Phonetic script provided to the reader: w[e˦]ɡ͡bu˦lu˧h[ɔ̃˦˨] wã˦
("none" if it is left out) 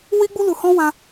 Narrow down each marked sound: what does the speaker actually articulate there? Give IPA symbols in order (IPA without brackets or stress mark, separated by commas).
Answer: i˦, ɔ̃˦